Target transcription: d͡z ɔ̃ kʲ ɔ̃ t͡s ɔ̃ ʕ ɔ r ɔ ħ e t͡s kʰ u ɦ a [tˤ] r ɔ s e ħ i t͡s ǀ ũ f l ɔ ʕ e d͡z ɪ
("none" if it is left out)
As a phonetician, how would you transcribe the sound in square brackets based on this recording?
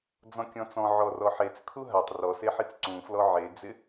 tˤ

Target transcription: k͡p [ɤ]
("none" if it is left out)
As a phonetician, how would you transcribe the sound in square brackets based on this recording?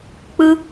ɯ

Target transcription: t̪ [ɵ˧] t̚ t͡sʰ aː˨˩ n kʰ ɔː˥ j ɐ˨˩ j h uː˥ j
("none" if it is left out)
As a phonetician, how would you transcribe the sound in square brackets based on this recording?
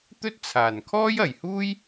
ɵ˥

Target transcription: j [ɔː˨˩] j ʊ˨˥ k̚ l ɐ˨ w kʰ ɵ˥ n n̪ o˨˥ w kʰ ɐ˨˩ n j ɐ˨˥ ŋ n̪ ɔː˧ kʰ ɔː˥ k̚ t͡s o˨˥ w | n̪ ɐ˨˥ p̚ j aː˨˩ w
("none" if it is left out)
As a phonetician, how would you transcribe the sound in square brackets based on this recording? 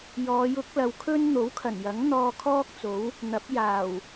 ɔː˨˧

